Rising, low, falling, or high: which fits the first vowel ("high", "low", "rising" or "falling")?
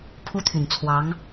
high